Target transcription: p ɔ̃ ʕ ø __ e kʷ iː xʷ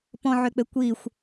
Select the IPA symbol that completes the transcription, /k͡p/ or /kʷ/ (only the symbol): k͡p